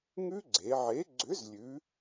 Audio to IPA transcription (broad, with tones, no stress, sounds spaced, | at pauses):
ŋ ʉ˦˥ ɡ͡ǀ e˩˧ ʕ e˨˥ ɡ͡ǀ ʏ˨˥ z lʲ ʉ˩˧